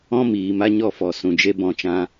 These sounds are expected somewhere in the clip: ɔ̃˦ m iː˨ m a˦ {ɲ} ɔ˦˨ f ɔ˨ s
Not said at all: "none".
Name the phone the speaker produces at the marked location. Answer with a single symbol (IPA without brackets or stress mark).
ɲ